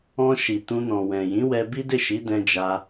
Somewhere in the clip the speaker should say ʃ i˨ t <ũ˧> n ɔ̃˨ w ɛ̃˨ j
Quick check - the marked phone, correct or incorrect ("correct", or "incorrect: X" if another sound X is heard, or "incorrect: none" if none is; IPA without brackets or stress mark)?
correct